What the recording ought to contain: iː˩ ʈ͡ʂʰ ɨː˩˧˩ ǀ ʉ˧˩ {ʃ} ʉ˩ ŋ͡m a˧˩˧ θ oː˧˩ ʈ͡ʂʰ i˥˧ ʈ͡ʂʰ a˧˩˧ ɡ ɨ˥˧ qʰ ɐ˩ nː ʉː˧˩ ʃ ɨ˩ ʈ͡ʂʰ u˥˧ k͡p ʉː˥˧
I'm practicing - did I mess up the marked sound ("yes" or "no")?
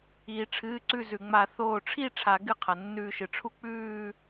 yes